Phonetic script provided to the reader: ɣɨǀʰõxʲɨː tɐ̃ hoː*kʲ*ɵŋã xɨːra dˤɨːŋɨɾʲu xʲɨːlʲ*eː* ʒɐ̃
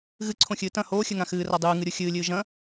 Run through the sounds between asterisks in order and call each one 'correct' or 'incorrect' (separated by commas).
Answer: incorrect, incorrect